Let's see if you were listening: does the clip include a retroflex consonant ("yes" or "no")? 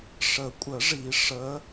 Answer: yes